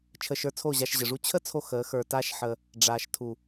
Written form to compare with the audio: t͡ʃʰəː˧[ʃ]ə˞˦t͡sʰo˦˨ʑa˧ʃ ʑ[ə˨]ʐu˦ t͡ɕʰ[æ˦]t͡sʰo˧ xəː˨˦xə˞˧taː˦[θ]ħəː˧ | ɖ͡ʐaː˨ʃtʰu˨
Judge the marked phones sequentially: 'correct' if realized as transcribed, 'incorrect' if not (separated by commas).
correct, correct, incorrect, incorrect